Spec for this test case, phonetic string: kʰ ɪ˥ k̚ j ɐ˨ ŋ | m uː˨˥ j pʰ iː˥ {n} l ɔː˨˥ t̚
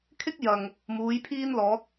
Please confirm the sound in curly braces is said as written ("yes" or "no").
yes